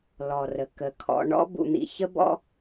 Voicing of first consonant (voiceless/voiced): voiced